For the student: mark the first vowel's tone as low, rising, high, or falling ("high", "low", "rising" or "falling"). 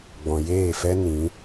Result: low